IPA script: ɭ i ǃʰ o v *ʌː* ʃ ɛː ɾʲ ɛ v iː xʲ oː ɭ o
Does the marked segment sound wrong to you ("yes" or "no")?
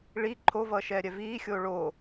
no